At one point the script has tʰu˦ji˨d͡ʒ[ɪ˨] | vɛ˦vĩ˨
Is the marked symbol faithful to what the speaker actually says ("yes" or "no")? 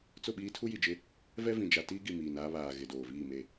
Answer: no